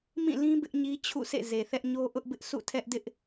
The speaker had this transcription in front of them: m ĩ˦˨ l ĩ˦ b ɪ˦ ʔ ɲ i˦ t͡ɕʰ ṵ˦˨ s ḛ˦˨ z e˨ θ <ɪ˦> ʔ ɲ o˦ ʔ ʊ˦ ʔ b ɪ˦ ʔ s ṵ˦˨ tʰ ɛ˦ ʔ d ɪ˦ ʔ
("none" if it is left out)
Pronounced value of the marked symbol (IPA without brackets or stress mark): ɛ˦